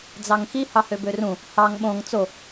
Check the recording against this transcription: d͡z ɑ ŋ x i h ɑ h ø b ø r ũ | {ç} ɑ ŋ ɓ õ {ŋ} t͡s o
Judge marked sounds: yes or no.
no, yes

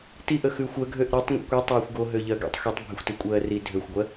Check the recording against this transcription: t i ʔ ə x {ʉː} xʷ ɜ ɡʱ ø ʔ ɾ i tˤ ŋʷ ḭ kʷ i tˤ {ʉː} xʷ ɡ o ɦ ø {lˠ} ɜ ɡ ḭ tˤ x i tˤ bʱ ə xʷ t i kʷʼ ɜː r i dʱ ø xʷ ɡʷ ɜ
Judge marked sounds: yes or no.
yes, no, no

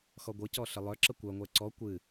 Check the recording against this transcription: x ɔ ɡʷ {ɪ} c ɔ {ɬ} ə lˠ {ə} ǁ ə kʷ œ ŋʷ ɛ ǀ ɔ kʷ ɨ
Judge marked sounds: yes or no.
no, yes, no

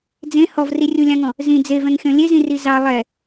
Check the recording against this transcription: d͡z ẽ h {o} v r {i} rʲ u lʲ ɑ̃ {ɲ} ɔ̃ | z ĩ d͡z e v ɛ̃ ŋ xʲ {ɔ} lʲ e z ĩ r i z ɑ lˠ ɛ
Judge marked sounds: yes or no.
no, yes, no, no

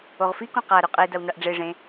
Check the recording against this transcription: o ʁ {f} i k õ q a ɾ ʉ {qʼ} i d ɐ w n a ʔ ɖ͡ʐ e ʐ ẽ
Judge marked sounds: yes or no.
yes, yes

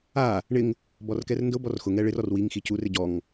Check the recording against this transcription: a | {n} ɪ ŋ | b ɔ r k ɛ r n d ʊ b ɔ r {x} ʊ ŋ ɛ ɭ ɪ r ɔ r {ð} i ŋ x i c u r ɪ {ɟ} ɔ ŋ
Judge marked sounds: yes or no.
no, yes, no, yes

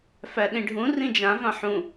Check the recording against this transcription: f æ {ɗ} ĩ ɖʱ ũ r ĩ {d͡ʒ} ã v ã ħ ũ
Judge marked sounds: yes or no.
yes, yes

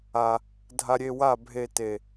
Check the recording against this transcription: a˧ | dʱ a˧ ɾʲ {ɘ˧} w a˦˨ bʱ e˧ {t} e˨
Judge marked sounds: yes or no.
no, yes

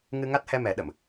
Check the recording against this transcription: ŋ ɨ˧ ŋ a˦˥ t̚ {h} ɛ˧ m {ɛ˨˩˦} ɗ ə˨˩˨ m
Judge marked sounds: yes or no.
yes, yes

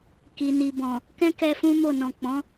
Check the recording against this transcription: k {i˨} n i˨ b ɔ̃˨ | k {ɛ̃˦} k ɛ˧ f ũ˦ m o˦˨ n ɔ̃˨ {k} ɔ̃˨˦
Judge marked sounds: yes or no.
yes, yes, no

